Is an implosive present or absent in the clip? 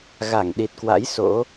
present